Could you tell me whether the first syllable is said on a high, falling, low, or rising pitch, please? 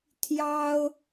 high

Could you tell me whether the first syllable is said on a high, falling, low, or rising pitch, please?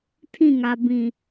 falling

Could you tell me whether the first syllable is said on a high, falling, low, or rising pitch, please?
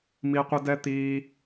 high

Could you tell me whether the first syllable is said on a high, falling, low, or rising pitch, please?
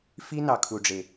high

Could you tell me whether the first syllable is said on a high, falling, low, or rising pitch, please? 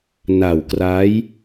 low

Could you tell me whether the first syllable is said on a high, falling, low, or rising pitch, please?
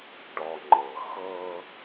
low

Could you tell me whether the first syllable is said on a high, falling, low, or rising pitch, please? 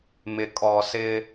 low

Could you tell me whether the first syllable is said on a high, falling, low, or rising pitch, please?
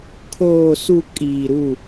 low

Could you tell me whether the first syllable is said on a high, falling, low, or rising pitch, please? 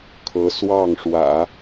rising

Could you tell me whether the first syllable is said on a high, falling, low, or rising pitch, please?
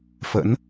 rising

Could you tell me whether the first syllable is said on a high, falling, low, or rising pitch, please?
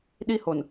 high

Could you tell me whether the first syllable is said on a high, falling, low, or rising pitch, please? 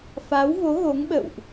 rising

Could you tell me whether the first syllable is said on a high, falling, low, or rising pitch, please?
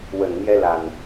low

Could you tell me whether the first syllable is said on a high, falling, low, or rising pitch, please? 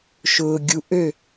low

